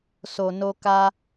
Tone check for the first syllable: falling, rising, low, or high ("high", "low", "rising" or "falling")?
low